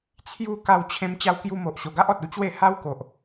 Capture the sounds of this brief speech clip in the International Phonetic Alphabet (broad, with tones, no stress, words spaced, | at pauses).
t͡sʰju˥˧ ka˧wt͡ɕʰẽ˧m t͡ɕa˦wkju˦ mo˨ʔɕo˨˩ɡa˦ʔɔ˨t̚ u˦t͡ɕwe˥˧ ha˦wko˨ʔ